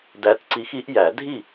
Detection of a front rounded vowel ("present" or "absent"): absent